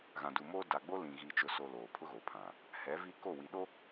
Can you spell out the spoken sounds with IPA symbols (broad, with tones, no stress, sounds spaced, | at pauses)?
ɣ ã˨ d u˨ m oː˦ d a˨ ɡ͡b o˦ l ĩ˨ ɣ i˨ t͡ʃ ʊ˨ s o˨ l oː˨ pʰ ʊ˦ ɣ o˨ pʰ ã˨ | h ɛ˨˦ v i˦ k o˦˨ w i˨ ɗ o˦